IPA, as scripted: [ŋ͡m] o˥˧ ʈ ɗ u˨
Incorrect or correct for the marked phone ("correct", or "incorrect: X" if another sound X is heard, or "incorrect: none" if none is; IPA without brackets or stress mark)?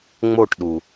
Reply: correct